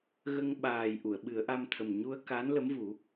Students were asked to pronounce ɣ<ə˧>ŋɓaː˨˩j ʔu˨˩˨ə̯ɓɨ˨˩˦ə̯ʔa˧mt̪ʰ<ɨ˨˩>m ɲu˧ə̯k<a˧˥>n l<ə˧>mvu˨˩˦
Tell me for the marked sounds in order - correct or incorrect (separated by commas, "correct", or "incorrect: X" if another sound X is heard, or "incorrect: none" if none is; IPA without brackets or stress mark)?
correct, incorrect: ə˨˩, correct, incorrect: ə˧˥